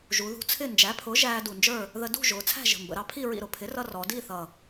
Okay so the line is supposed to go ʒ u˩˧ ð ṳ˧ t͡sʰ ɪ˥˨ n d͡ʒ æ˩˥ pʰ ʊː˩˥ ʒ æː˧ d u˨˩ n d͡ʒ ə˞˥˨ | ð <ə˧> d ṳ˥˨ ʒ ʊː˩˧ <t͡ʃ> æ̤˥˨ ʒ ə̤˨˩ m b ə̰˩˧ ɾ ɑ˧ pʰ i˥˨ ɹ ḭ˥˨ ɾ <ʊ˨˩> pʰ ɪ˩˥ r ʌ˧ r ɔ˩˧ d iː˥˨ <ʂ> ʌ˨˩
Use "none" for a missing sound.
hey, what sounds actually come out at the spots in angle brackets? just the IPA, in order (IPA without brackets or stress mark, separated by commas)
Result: ə˧, t͡sʰ, ʊ˩˥, θ